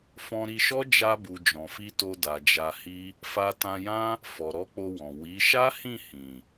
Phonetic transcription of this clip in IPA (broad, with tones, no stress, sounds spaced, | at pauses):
f ɔ̃˧ ɾ i˧ ʃ ɔ˦ d͡ʒ a˧ b u˨ d͡ʒ ɔ̃˨ f i˧ t o˧ d a˨ d͡ʒ a˧ h i˦ | f a˧ t ã˧ j ã˦ | f ɔ˨ ɾ ɔ˨˦ k͡p o˧ w ɔ̃˨ w i˨˦ ʃ a˦ h ĩ˦˨ h ĩ˨